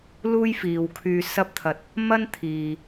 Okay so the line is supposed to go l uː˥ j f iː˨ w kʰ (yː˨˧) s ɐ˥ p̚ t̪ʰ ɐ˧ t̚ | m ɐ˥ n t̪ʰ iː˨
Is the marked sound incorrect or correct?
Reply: incorrect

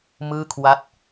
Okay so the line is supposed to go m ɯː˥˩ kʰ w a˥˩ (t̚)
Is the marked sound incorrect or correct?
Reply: correct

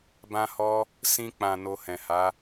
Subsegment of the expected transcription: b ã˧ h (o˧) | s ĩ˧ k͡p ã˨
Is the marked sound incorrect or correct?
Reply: incorrect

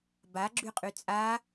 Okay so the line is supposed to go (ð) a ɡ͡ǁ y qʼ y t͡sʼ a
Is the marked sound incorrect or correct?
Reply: incorrect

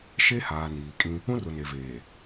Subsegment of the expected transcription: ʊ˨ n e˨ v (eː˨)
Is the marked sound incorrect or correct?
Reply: correct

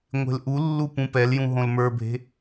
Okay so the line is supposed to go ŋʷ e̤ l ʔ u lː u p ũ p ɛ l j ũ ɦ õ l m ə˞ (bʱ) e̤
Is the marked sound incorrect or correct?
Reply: correct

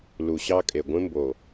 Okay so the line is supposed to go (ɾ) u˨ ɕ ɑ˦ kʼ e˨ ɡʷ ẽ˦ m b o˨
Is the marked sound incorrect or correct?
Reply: incorrect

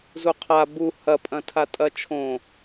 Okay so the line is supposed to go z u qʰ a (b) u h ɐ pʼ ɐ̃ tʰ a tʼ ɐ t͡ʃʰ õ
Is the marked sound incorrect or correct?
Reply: correct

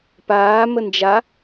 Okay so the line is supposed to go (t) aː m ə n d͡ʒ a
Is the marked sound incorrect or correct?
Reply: incorrect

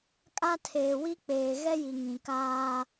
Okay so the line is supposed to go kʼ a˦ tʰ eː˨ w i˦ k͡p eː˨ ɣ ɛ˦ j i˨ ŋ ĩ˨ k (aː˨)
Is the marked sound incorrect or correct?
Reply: incorrect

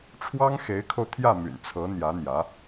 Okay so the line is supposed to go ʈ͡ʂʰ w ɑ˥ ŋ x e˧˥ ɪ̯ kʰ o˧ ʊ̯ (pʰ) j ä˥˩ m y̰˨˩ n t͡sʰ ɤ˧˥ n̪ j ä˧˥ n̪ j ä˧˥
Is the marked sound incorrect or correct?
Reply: incorrect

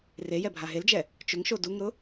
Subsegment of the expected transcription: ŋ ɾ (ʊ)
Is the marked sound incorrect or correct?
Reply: correct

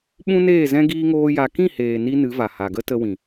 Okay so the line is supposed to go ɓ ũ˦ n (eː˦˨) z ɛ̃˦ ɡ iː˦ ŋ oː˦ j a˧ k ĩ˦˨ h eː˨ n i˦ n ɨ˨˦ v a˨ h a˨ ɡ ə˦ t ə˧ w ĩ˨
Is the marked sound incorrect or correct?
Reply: correct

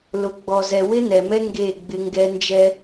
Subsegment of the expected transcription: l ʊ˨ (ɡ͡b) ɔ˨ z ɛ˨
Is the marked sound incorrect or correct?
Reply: correct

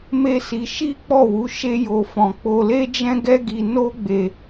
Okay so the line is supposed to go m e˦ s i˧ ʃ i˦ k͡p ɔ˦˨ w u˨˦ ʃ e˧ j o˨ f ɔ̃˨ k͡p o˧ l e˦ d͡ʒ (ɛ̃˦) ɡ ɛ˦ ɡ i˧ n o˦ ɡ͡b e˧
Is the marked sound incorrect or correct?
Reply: correct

